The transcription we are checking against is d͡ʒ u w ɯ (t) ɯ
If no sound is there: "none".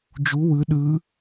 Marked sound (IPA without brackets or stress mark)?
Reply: ɗ